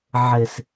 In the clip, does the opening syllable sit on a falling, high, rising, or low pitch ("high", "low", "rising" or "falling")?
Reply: low